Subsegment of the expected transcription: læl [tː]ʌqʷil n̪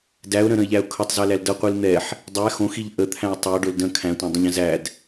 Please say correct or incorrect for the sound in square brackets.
incorrect